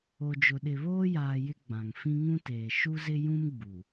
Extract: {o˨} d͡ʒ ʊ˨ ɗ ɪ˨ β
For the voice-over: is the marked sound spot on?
yes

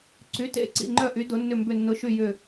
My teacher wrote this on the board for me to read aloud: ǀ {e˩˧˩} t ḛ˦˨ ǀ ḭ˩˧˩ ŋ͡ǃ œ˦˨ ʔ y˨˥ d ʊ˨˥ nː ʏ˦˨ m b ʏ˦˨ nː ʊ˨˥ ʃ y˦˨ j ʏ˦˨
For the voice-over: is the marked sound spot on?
no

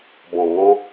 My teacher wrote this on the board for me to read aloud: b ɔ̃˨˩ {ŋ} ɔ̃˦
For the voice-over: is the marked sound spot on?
yes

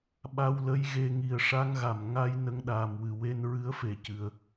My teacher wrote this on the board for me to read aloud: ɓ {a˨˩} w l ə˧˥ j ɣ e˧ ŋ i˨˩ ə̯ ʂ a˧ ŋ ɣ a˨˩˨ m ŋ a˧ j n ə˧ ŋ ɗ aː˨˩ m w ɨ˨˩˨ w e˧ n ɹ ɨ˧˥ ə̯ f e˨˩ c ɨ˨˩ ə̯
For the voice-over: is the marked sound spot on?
no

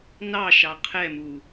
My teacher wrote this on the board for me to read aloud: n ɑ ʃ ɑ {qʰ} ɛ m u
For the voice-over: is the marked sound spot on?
yes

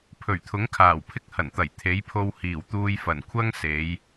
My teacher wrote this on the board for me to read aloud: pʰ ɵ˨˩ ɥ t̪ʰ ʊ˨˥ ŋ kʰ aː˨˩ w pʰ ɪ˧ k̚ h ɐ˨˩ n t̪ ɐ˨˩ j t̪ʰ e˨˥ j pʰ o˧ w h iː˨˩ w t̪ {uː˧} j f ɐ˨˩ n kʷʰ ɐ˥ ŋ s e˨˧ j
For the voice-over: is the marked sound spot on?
yes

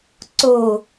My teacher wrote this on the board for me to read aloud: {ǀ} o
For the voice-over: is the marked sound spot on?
yes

